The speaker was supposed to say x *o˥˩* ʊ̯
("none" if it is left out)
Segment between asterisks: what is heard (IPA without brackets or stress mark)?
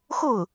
o˥˩